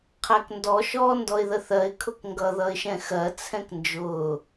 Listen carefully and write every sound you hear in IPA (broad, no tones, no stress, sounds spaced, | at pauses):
qʰ æ k n d ɔ ʃ ɔː n d ɔ ɪ̯ ð ə θ ɜ ɪ̯ kʰ ʊ k ŋ ɡ ʌ ð ʌ ɪ̯ ʃ ɛ̃ x ɜ t͡sʰ ɛ̃ k n d͡ʒ ʊː